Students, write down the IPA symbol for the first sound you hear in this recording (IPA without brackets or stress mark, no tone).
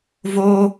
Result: v